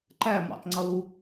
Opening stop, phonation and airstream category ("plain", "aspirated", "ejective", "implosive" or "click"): click